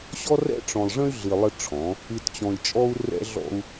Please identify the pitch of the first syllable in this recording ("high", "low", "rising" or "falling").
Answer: high